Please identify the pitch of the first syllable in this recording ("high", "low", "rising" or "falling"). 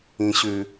low